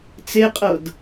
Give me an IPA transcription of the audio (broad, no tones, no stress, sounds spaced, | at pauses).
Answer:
t͡s e qʼ ɤ d